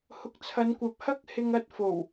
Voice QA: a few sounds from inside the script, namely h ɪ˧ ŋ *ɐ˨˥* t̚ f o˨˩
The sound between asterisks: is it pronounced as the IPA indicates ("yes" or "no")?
no